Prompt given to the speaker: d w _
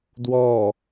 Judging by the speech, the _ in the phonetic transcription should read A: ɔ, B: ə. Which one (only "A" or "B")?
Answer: A